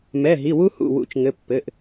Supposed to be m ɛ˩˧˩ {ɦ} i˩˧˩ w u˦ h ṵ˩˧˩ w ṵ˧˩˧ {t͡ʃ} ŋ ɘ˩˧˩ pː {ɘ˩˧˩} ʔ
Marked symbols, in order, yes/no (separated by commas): yes, yes, yes